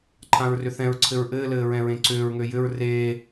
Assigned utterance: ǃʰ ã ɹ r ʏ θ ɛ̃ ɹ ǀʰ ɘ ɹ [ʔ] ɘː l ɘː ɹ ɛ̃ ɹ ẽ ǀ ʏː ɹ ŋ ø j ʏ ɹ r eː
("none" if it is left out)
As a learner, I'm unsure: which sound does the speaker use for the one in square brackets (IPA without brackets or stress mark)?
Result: ʔ